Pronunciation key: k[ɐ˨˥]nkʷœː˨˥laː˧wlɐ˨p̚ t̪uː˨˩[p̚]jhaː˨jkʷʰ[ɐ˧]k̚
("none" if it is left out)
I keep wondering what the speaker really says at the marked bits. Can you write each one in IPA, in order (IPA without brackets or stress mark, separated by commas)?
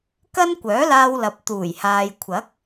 ɐ˥, none, ɐ˨˥